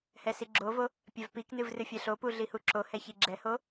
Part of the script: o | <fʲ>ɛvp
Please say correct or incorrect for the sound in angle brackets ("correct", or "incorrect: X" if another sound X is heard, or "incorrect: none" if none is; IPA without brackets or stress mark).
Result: incorrect: pʲ